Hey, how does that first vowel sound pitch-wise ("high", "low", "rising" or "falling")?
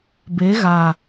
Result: rising